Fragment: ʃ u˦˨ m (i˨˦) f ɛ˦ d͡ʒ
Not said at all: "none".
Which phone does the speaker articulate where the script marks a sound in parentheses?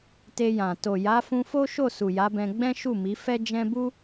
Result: i˨˦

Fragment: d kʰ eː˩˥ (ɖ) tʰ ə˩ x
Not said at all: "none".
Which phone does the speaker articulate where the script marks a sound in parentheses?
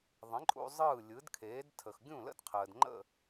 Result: d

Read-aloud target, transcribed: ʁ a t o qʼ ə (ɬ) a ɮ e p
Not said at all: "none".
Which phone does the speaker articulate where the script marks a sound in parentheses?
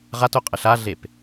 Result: ɬ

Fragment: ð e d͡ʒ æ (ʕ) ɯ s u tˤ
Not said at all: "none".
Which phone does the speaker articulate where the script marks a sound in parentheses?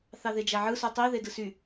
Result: ʕ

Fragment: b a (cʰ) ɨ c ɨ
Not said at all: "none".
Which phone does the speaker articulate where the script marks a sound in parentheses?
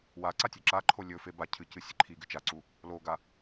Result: cʰ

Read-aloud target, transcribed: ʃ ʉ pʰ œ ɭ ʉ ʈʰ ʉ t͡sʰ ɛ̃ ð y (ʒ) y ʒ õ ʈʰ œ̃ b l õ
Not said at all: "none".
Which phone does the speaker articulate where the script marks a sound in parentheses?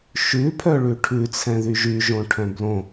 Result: ʒ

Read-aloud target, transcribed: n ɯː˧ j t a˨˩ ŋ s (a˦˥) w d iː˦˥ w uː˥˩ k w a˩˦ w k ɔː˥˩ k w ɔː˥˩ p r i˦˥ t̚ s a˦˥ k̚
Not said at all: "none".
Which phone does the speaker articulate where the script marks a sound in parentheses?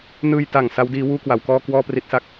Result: a˦˥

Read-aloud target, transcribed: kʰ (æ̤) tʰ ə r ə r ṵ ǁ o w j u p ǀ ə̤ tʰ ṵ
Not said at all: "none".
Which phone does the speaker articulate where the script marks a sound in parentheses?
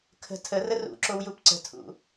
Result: ə̤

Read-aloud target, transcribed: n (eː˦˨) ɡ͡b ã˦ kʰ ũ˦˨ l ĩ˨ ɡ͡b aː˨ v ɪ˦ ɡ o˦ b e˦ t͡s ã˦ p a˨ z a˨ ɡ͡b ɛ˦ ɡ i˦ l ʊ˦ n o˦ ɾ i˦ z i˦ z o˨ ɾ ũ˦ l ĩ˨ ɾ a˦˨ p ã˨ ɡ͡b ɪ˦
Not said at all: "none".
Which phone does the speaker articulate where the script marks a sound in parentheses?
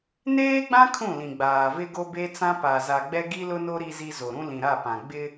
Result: eː˦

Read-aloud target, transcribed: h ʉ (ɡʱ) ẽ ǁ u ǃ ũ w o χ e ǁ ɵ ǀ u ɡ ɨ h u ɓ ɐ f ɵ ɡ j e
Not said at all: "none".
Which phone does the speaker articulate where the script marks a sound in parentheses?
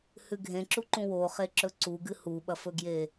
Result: ɡʱ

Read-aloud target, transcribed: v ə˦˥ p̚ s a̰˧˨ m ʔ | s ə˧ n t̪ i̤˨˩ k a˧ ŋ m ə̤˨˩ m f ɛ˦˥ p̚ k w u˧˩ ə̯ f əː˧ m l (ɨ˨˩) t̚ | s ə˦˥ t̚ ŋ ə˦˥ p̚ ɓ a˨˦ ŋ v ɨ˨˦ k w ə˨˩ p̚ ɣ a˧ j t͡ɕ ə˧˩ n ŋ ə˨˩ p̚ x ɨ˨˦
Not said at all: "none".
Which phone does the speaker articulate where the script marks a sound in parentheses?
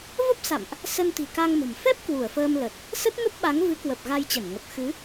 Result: ə˨˩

